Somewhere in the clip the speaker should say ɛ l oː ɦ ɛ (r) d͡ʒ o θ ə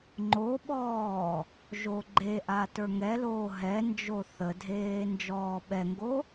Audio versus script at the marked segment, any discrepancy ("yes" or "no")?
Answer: yes